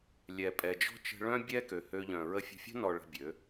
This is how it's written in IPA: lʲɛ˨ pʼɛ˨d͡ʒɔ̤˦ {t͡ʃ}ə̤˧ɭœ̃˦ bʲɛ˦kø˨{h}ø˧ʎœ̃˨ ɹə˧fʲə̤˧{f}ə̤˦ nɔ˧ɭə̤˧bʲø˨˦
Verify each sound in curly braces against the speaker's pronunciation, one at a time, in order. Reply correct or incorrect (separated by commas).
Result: correct, correct, incorrect